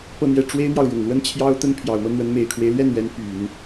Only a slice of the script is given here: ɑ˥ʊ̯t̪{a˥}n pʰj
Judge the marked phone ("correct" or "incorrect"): incorrect